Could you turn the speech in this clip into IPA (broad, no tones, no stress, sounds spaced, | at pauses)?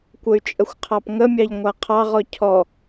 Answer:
kʷ ə y̯ t͡ʃʼ ə xʷ qʰ ɑ p ŋ ə mʲ ɑ ʎ ŋʷ a qʰ ɑ ʁ ɔ cʰ ɔ